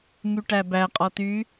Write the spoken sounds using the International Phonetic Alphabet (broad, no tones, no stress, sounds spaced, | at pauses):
ŋ y ʈ æ b æ qʼ ɔ t y